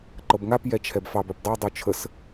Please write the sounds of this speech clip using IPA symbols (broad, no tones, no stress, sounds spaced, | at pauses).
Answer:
ǃ ɤ b ŋ a p j ɛ t͡ʃʰ ɛ b f ɑ b œ p dˤ ɤ dˤ u t͡ʃʰ ə s